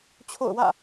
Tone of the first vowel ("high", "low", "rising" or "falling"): falling